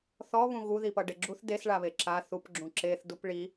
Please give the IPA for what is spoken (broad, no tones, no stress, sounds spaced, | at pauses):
θ ɔ β ũ ɣ u ð i p ʌ ɖ e ɡ͡ǁ u θ d e s ɭ a β e ǁ a θ u p ɡ͡ǁ ũ ǁ e θ d u p ɭ i